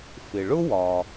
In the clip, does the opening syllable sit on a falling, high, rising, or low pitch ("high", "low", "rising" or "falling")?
low